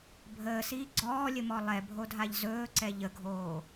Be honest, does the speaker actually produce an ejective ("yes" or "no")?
no